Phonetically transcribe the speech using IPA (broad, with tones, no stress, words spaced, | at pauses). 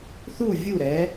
θu˧˩ vʲu˧˩ɾɛ˩˧